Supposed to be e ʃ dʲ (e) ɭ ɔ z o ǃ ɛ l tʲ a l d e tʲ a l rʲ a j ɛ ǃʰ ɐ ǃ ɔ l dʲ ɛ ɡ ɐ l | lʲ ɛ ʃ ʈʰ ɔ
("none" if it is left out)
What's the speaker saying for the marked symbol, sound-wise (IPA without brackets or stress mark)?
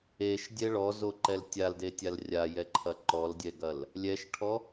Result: ɛ